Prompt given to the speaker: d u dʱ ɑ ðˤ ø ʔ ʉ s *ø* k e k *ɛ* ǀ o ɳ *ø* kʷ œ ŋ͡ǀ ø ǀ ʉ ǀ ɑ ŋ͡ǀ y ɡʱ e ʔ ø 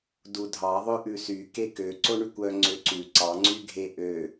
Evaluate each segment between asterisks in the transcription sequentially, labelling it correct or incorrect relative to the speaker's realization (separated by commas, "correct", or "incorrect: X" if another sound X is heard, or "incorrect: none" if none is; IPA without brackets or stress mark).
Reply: incorrect: y, incorrect: ø, incorrect: y